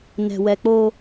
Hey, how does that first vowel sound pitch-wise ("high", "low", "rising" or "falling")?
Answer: low